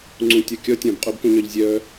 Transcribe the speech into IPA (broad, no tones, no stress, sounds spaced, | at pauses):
ŋ͡ǀ ũ tʲ ɔ kʲ ɔ tʲ ɔ̃ b qʼ u b k ũ ɲ œ ʎ zʲ œ